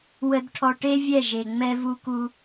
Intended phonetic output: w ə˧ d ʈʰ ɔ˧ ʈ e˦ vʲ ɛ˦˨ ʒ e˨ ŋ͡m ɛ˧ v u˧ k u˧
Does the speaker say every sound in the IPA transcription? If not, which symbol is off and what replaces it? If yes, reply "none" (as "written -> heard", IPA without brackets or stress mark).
none